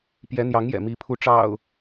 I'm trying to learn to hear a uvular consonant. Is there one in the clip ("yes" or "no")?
no